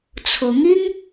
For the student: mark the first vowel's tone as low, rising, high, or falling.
rising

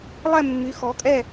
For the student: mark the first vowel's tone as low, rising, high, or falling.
falling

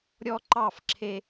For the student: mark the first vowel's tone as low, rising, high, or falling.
high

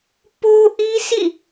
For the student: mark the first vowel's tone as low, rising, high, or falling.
high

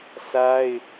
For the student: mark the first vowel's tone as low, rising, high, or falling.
high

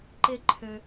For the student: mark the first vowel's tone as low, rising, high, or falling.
high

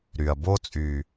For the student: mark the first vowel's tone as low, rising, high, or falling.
low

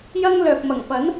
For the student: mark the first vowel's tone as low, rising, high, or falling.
high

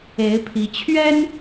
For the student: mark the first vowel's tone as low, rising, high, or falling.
rising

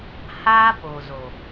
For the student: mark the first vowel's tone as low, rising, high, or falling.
high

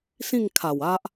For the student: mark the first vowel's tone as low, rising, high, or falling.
falling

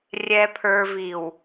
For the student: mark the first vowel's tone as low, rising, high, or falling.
low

